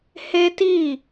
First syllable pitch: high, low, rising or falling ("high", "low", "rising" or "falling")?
high